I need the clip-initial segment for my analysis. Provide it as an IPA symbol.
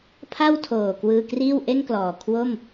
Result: pʰ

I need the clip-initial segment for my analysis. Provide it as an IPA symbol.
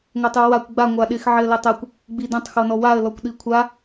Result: ŋʷ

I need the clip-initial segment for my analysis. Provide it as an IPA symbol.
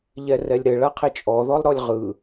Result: ʎ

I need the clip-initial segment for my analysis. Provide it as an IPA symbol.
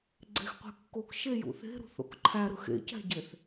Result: ɡ͡ǀ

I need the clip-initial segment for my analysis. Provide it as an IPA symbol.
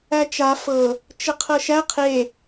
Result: æ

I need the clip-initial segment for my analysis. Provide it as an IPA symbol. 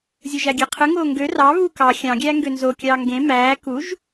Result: zʲ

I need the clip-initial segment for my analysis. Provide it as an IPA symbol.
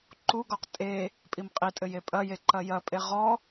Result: ǃ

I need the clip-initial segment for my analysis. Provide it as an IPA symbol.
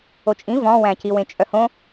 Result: o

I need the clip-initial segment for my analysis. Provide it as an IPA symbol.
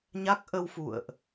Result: ɲ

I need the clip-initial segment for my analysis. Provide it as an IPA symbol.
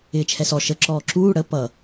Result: ɪː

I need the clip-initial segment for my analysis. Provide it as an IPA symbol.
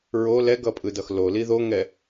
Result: ɹ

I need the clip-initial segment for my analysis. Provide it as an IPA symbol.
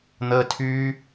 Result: n̪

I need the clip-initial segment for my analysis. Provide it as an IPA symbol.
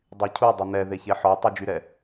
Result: dˤ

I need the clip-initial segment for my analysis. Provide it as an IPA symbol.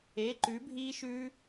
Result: e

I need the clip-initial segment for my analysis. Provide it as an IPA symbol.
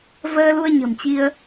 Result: v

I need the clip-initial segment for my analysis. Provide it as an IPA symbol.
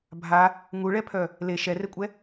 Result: bʱ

